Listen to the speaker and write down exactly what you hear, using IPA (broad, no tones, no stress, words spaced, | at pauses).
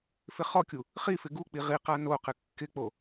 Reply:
fɪχɔkʲu | χifɪ ɡuk͡pi ʁiqa no qɪkːɪk͡po